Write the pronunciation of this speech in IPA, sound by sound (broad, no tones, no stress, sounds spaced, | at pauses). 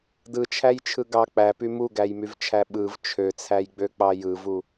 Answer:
d ɯ t͡ʃʰ æ j t͡ʃʰ ɯ ɡ ɑ k͡p æ p y m u ɡ æ j m y v t͡ʃʰ æ ɓ ɯ v t͡ʃʰ ø t͡sʰ æ j ɡ͡b ø k͡p ɑ j ɯ v u